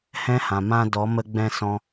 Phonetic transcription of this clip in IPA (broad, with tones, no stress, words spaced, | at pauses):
hɛ̃˦hã˨ mã˧dɔ˨˦mə˧ɡ͡bɛ̃˧ sɔ̃˧